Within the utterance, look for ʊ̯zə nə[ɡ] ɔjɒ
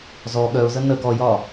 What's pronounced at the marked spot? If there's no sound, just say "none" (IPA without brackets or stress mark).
ɡ